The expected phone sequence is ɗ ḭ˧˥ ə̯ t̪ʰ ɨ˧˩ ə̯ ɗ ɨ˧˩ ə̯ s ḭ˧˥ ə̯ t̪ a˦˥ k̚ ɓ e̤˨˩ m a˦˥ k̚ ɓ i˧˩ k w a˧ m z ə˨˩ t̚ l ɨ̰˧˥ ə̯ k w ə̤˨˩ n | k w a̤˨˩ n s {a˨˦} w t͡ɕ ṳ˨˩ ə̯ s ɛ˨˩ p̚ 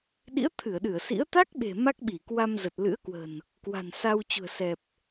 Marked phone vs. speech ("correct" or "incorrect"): incorrect